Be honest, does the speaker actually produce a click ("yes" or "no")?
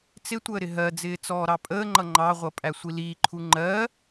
yes